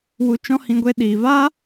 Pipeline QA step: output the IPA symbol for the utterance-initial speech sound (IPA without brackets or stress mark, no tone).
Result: w